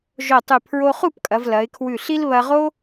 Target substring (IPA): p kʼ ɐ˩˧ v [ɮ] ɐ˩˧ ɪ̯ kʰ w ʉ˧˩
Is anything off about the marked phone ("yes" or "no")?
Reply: yes